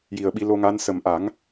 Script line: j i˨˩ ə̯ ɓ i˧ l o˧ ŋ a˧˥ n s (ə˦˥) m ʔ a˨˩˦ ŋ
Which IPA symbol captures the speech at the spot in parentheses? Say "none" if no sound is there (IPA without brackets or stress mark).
ə˨˩